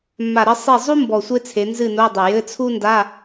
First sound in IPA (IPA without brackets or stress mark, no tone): mː